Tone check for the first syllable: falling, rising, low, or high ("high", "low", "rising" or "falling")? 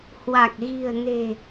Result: low